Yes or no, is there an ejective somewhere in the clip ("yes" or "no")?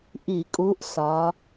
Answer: yes